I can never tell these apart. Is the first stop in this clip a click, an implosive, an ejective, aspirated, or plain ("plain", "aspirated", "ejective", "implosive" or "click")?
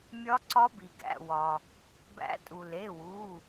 click